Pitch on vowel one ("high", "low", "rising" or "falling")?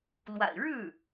low